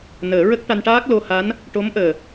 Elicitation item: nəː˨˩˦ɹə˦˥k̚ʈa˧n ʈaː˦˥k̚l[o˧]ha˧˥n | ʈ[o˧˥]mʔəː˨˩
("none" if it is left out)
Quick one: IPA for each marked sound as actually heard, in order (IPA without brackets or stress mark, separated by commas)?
o˧, o˧˥